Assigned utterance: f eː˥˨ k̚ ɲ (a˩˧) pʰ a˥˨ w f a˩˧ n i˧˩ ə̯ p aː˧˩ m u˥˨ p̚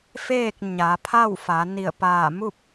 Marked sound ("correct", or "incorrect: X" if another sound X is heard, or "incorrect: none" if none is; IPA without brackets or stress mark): correct